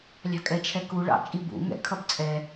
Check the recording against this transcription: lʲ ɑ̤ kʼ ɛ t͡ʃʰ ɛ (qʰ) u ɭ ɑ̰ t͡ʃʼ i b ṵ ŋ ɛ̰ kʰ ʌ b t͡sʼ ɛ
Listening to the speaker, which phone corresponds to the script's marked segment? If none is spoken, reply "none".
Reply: k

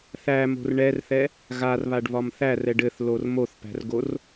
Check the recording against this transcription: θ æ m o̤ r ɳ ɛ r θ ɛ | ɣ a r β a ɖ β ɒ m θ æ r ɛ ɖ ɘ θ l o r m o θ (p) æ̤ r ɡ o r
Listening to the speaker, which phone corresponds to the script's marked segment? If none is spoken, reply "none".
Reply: p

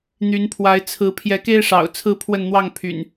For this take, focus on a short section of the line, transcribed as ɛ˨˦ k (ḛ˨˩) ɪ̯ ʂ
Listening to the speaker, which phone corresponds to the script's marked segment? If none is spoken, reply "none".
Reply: e˦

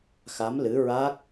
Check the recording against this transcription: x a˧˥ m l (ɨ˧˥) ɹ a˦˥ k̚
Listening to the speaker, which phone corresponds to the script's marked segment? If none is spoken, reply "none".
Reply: ɨ˧˥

